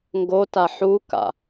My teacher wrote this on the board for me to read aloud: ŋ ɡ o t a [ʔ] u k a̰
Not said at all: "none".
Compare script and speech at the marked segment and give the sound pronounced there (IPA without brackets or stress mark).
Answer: ħ